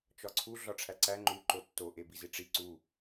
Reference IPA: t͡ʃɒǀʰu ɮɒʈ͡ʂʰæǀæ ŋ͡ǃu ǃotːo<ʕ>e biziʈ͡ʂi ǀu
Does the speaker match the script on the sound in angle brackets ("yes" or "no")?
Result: no